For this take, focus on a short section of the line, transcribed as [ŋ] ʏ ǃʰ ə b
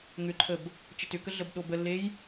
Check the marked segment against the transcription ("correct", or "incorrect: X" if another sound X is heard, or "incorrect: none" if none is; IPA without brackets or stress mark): correct